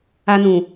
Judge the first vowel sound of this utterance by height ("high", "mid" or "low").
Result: low